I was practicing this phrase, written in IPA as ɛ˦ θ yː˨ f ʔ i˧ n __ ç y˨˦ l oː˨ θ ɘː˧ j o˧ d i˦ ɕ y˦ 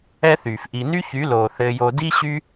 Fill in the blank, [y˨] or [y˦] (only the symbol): y˦